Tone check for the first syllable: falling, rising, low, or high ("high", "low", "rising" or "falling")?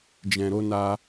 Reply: low